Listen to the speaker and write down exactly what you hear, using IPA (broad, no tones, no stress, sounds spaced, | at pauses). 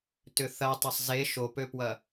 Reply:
t ʏ θ ɐ tˤ ɐ sˤ z e ʃ o p ø p w ɐ